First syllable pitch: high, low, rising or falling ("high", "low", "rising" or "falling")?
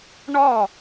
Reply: falling